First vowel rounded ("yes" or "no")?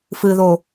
no